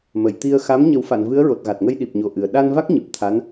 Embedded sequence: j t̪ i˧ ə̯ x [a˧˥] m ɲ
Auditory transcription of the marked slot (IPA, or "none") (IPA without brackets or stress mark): a˧˥